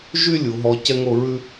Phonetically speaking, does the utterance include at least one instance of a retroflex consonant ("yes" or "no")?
no